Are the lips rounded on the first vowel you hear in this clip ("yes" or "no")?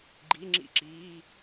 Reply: no